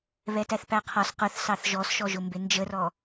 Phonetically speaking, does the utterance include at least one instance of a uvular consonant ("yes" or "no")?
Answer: yes